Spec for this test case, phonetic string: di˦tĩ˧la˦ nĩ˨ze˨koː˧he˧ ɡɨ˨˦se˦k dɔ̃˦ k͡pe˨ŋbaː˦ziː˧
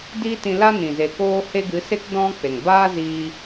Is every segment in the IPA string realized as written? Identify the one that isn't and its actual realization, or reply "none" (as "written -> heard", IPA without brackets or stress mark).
none